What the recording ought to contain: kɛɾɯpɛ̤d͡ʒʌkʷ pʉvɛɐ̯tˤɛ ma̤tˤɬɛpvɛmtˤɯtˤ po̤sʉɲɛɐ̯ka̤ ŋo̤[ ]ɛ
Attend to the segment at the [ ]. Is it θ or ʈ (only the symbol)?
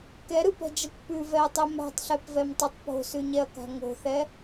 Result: θ